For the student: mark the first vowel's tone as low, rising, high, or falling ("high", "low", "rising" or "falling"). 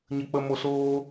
low